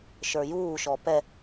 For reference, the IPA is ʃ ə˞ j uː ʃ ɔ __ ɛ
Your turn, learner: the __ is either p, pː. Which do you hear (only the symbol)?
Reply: p